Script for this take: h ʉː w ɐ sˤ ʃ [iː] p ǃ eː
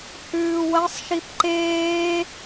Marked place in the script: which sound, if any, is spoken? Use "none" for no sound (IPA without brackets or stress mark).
i